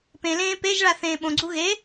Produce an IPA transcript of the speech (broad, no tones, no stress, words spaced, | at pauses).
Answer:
pẽlẽː peʒɭa θẽːɓõɡ͡ǀu ɣe